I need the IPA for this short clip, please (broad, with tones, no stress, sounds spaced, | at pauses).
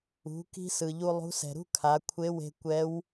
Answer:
ṳ˩˧ k i̤˧ s ɯ˩ ʎ u˧ lˠ ṳ˧˥ s ɛ̤˩ ɾ ṳ˥ kʰ a˩˧ kʷʰ e˧˥ w e̤˧ kʷ ɛ˧˥ w